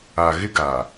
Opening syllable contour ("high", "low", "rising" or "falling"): low